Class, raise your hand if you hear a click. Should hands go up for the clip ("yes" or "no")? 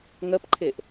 yes